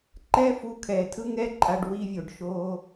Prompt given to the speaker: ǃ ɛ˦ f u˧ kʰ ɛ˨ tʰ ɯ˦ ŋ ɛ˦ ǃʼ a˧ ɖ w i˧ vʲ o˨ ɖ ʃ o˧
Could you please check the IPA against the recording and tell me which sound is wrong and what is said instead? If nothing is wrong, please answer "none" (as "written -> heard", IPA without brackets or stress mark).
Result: none